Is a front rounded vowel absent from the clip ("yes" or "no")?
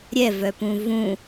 no